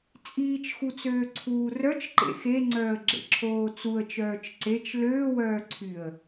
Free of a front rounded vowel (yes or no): no